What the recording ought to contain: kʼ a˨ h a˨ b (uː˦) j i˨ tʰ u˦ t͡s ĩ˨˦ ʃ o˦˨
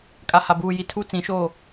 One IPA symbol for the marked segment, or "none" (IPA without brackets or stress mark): uː˨